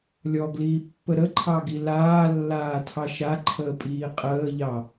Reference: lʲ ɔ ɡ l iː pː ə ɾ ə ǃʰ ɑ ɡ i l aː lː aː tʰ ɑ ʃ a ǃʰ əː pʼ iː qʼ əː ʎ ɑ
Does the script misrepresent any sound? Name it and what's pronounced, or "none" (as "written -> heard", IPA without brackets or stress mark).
none